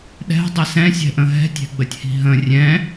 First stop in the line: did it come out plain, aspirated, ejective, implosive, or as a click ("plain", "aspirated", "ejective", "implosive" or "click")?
implosive